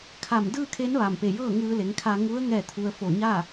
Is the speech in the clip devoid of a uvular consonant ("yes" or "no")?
yes